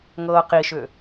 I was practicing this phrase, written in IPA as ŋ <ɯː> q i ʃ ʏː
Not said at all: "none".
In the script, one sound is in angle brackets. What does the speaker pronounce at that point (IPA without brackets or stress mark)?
ɤː